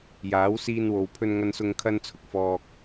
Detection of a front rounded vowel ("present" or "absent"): absent